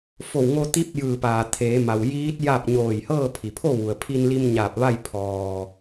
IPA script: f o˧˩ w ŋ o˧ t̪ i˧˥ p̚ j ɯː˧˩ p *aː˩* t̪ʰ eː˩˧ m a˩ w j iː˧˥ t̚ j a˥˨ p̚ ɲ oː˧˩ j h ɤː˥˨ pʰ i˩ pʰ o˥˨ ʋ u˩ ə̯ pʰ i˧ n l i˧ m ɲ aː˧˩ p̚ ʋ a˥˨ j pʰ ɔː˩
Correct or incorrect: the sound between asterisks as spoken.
correct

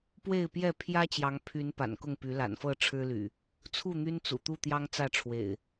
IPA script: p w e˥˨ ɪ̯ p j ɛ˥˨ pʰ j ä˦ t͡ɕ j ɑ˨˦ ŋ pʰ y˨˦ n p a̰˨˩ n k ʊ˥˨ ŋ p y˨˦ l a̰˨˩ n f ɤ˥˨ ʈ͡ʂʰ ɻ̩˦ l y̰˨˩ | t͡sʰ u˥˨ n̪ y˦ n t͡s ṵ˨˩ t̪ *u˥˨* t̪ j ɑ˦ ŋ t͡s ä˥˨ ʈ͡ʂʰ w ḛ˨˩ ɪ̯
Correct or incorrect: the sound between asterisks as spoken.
correct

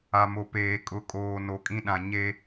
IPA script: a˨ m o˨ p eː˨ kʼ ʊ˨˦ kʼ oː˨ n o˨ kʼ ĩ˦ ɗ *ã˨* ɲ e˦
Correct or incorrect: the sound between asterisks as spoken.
correct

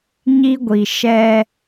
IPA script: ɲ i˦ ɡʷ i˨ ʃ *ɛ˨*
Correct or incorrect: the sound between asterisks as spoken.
incorrect: ɛ˦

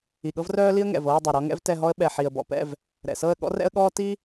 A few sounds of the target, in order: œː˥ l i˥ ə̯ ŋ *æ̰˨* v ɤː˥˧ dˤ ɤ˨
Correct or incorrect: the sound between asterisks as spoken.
incorrect: ɛ̰˨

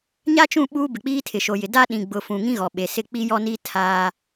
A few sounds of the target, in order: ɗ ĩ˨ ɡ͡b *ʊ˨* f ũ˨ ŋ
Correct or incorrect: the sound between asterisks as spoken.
correct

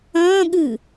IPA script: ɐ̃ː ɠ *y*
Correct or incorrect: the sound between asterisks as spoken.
incorrect: ɨ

